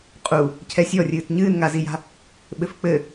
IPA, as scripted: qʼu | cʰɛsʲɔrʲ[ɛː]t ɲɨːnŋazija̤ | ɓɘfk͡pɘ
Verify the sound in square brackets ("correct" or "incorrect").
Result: incorrect